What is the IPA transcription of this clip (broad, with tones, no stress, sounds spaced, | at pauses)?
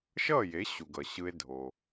ʃ ʌː˥˩ j e˩˥ ɕ u˩ ɡ ʌ˩ ɕ ɯ˧ e̯ dʱ o˩